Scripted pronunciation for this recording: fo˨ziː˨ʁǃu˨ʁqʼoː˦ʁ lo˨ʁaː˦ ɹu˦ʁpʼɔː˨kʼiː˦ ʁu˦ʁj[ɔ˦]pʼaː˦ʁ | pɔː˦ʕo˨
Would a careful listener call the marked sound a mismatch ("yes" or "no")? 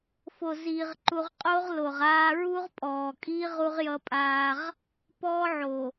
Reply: yes